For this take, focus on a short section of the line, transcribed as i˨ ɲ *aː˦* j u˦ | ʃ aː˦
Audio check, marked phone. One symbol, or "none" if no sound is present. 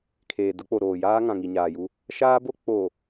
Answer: aː˨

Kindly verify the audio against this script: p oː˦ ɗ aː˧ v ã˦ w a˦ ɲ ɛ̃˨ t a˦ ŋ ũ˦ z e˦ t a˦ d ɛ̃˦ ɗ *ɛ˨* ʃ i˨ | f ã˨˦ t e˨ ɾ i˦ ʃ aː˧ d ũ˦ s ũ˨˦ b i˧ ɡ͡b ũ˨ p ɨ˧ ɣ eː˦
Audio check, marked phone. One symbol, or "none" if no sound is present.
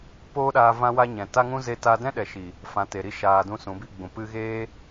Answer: ɛ˨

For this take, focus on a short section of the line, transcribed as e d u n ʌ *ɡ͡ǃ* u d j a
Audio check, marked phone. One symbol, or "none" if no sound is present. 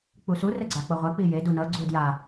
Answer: ɡ͡ǀ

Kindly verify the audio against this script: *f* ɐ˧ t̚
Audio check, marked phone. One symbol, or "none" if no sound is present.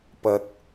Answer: p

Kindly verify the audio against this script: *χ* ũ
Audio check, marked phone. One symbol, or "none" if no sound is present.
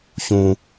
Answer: ç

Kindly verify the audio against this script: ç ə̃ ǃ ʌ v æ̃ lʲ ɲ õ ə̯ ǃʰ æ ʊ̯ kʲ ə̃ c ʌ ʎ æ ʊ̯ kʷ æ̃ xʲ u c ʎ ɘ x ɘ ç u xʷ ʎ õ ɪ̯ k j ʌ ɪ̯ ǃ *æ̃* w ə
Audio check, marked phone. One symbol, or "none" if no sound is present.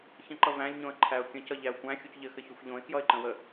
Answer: ə̃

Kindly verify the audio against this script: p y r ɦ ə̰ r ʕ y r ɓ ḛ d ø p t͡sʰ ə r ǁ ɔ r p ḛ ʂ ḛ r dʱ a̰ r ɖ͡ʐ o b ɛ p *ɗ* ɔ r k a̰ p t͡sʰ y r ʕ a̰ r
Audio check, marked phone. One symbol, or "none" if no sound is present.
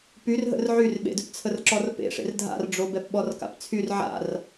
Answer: ɓ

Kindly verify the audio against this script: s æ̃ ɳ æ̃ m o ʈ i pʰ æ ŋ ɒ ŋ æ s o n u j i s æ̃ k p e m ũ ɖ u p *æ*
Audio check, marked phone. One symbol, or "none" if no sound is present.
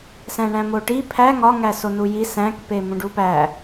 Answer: æ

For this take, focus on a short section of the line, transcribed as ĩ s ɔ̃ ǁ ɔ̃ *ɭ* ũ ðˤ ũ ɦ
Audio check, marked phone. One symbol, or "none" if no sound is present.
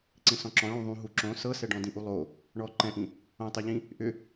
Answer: ɭ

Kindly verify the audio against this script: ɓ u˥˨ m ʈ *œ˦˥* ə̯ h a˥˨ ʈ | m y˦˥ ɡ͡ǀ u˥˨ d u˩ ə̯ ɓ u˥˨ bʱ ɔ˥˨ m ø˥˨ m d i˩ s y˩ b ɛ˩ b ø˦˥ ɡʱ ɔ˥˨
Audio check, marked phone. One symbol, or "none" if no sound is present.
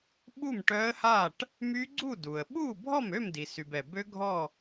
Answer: œ˦˥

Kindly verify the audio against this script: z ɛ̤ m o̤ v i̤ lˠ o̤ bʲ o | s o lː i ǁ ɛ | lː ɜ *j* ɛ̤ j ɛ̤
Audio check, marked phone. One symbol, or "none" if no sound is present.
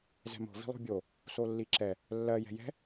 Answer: j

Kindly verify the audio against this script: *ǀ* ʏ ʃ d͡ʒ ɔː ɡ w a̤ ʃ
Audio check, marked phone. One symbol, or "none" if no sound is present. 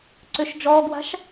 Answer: ǀ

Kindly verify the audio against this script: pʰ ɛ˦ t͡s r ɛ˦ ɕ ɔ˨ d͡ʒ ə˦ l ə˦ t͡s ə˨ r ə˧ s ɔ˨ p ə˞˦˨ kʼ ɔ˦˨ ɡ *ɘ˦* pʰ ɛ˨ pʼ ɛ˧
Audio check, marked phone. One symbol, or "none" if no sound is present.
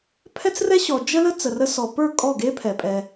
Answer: e˦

